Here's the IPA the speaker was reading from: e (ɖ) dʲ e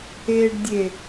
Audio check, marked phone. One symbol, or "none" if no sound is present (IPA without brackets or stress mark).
ɖ